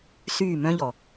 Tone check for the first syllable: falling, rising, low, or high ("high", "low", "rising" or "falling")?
falling